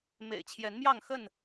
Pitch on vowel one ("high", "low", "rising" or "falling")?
low